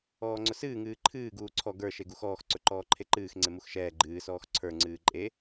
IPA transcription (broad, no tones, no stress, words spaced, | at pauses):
ɔːŋ͡ǀʊsɨː ŋɨːǃʰɨː ɡuːǀʰɔ ɡə˞ ʃeɡuxɔːx ǀɵǃɔːǃʰeǃɨːx ŋ͡ǀemuxʃɛː ɡ͡ǃɨː sɔːxǀʰə˞ ŋ͡ǀɨːǃʼe